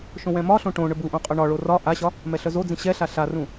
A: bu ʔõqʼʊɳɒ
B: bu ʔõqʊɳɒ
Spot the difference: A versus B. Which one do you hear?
A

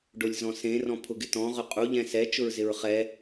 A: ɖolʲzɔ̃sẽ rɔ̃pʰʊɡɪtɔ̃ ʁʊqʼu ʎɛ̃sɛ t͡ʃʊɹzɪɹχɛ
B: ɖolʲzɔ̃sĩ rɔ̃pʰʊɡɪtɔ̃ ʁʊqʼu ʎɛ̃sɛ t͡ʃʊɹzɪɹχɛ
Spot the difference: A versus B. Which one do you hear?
A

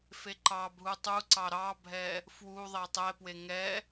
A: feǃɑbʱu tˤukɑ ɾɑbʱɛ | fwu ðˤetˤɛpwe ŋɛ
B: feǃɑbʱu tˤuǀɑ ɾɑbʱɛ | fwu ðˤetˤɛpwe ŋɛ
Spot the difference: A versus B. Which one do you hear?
B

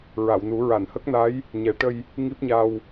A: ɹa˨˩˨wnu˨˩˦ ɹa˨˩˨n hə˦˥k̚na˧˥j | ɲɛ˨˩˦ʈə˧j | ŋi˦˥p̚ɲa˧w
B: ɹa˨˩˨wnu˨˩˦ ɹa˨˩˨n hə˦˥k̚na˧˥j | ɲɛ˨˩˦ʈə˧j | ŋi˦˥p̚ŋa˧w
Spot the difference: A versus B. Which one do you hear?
A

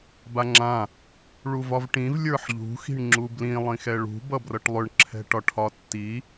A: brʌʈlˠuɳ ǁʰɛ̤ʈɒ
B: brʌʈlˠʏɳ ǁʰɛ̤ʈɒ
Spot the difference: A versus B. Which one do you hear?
B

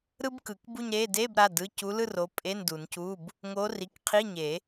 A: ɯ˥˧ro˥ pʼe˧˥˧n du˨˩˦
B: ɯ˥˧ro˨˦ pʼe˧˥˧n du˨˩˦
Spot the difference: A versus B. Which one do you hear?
B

